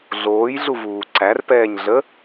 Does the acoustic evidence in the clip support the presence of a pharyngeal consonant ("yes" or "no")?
no